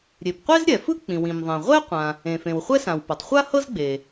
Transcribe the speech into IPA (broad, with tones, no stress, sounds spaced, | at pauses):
ɾʲ e˩ p qʷ e˥ z ɾʲ ɛ˩ f ɯ˥ k͡p ĩ˩ w ĩ˩ m ðˤ ẽ˩ ʁʷ ɛ˥ qʷ ã˩ | ẽ˩ f ẽ˩ w χʷ ɛ˥ s ã˩ w p ɤ˩ tˤ χʷ a˥ h ɤ˥ z ɡ͡b e˩